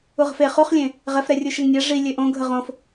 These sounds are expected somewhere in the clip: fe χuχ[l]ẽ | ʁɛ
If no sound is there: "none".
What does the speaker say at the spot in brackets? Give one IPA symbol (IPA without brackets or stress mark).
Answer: lʲ